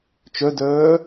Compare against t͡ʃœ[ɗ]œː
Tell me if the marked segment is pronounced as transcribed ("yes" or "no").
no